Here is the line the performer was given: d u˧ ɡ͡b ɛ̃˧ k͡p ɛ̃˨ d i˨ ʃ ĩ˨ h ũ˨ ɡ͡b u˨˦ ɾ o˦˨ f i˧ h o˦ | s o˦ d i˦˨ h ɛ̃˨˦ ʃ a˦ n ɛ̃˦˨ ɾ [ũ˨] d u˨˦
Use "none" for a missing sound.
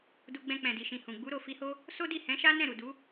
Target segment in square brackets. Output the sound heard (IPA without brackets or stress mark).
u˨